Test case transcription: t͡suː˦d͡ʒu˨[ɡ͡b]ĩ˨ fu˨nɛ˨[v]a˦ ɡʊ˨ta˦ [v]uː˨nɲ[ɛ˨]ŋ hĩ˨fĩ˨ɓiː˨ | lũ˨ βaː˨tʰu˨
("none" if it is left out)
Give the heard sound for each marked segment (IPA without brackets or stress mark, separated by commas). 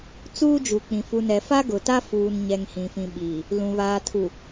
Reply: k͡p, f, f, ɛ˨